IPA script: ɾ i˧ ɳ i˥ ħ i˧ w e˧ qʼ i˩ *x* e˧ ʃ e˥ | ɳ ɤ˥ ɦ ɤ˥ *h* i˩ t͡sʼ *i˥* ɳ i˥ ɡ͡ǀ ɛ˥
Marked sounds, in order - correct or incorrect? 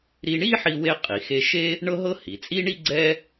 correct, correct, correct

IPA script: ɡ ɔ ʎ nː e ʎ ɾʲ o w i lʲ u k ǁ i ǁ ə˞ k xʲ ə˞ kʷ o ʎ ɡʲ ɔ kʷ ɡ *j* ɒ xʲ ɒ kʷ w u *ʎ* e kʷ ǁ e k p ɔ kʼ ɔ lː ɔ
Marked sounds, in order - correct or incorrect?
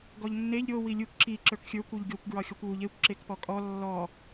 incorrect: ɹ, correct

